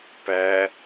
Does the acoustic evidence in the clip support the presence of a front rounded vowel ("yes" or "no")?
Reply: no